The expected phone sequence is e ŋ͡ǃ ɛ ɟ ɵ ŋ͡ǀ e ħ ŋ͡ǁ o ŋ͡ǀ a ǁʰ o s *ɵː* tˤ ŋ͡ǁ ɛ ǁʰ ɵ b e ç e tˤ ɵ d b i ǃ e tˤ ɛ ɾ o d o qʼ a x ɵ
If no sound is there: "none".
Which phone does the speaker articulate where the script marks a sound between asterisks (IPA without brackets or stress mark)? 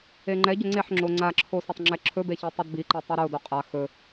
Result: ɵ